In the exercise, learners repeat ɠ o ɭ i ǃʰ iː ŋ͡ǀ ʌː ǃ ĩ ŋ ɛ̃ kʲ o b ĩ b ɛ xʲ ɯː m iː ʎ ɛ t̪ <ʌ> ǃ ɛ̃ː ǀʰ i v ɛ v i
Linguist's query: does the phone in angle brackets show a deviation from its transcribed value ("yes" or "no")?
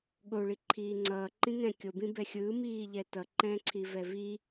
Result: no